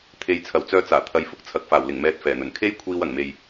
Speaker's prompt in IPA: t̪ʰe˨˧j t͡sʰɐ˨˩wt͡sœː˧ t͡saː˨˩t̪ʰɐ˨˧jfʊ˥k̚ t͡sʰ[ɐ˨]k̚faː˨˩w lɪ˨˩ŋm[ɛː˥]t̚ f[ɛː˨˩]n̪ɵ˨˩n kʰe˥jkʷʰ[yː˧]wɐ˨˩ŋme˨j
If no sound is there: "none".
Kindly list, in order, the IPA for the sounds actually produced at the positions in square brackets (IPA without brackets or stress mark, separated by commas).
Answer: ɐ˨˥, ɛː˧, ɛː˨˩, iː˧